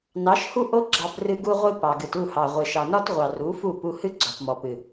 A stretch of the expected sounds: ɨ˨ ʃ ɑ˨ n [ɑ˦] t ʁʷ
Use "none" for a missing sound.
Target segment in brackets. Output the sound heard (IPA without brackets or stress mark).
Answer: ɒ˦